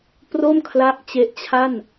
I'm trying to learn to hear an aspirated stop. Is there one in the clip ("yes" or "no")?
yes